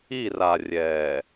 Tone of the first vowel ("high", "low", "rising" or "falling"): falling